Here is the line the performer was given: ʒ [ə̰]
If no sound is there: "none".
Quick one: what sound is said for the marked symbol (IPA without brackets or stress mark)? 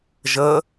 ə